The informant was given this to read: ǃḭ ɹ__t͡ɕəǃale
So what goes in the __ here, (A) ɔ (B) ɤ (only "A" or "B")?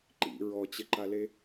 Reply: A